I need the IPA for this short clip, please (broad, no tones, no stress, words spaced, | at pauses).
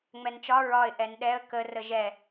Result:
ŋ͡mɛnt͡ʃɒ ɹɒɪ̯ ʔɛnɗɛə̯ kə rəʒɛ